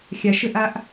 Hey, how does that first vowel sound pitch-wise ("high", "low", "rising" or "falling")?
low